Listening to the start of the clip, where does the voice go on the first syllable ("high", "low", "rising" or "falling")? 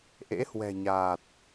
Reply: rising